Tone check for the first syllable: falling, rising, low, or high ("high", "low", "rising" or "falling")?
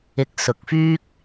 rising